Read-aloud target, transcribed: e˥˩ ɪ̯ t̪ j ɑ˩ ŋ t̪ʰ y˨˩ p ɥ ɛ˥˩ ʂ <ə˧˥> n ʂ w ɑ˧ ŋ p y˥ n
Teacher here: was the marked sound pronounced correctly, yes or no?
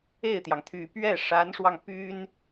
no